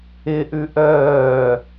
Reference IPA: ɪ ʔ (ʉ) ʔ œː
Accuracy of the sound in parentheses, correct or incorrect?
correct